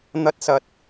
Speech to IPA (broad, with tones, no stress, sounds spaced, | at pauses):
n̪ ɐ˧ t̚ s ɐ˨ t̚